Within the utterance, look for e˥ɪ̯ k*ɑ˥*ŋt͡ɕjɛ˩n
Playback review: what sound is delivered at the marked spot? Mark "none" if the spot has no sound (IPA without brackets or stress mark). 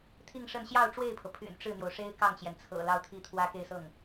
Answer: ɑ˥˩